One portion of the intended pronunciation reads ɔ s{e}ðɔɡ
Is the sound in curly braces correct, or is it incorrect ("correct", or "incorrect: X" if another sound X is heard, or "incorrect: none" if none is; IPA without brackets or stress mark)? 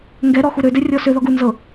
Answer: incorrect: ø